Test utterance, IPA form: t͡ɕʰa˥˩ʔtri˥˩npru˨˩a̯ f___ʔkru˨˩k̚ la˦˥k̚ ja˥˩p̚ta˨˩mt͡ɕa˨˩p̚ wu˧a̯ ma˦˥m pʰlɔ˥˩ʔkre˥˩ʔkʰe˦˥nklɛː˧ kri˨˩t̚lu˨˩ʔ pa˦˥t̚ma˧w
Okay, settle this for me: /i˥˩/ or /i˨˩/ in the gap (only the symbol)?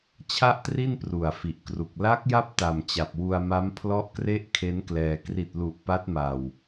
i˨˩